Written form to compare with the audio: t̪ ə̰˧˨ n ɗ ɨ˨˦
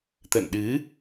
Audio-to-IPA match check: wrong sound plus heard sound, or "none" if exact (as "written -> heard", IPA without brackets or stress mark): none